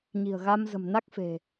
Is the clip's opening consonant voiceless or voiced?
voiced